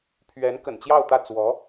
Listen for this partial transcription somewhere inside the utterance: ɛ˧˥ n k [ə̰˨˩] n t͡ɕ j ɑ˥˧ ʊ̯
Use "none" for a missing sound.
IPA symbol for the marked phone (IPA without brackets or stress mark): ə̰˨˩